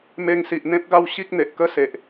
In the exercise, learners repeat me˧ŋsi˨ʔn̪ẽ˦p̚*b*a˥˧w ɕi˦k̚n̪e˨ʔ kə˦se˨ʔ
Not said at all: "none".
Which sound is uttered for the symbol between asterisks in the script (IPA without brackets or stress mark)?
ɡ